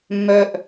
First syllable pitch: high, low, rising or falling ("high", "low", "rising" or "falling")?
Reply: low